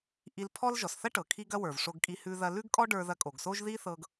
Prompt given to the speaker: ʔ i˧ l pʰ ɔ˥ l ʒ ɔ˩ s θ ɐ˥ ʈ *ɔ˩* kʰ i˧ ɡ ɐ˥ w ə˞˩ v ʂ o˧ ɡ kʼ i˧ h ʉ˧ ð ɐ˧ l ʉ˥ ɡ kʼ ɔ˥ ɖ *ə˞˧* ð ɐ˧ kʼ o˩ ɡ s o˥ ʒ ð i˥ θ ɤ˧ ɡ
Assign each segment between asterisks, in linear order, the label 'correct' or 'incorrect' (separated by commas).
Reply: incorrect, correct